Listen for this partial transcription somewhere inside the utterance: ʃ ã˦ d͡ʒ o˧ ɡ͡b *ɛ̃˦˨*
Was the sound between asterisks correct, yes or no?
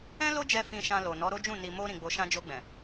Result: no